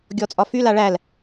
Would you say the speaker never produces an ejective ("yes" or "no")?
no